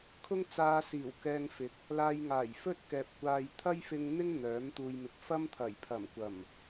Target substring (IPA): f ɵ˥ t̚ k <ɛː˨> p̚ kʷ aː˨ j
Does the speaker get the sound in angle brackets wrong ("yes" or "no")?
no